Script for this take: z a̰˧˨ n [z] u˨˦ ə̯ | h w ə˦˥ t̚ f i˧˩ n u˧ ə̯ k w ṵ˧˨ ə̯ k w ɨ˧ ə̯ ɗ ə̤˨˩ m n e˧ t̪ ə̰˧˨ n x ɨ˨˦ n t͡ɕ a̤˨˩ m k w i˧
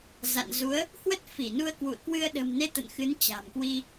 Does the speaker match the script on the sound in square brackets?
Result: yes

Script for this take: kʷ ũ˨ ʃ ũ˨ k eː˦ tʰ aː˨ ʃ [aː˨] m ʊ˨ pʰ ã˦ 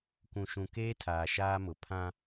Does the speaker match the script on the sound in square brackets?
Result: no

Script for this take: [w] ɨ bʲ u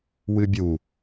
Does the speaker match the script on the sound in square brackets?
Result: yes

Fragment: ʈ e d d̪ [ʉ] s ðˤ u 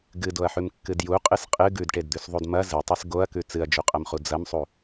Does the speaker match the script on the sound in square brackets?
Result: yes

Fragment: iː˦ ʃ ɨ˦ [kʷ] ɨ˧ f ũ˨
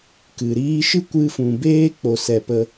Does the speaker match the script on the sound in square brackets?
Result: yes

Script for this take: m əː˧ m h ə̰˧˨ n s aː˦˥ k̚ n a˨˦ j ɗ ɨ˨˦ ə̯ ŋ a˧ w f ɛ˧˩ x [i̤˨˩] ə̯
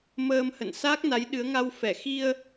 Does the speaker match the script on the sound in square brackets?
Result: no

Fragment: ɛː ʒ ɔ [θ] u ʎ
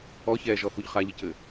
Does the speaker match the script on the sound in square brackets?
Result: yes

